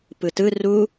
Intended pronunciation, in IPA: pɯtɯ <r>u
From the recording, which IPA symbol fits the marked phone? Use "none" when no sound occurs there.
r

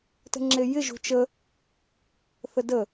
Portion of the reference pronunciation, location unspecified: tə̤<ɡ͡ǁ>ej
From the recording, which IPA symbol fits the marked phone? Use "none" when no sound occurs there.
ŋ͡ǁ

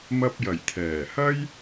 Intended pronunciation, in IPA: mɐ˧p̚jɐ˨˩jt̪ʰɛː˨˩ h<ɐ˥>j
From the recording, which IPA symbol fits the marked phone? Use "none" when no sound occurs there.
ɐ˥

